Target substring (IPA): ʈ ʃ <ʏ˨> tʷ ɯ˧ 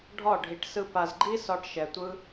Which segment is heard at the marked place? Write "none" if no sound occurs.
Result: ɛ˨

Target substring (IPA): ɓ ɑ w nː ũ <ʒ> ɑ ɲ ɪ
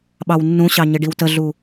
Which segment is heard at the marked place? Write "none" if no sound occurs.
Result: ɕ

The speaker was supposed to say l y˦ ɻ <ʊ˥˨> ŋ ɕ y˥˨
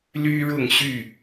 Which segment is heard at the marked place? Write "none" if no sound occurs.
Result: ʊ˥˨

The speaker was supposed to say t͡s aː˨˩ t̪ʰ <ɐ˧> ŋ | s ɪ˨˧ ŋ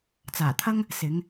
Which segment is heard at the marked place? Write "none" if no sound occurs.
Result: ɐ˥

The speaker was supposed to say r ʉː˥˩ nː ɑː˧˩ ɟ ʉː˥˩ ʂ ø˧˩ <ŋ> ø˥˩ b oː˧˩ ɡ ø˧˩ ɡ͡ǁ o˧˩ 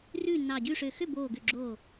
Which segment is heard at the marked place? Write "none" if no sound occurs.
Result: x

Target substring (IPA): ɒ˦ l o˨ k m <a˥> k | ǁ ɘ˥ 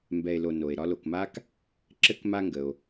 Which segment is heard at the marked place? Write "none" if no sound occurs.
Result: a˥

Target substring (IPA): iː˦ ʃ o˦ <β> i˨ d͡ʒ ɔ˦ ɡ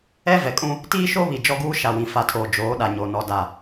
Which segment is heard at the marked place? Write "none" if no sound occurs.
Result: β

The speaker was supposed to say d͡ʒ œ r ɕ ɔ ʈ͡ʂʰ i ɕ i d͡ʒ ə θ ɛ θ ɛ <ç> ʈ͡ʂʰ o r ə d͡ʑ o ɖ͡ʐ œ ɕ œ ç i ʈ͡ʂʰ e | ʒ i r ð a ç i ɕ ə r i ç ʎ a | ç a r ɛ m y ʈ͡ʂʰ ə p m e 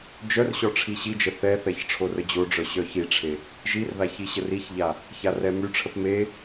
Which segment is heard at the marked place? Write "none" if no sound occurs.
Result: ç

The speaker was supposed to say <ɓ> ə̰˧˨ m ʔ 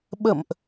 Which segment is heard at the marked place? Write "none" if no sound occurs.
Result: ɓ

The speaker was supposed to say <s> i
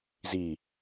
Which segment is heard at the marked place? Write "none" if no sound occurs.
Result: z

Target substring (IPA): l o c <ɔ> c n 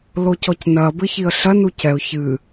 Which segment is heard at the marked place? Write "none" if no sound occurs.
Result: ɔ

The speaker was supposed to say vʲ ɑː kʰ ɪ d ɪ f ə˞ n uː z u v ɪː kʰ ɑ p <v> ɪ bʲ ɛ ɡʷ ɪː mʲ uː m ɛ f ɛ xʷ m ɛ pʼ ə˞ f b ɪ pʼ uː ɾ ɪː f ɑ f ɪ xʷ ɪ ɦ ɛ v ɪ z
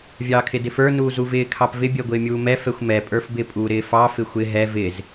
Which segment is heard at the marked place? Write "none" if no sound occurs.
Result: v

